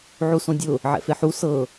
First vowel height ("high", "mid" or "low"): high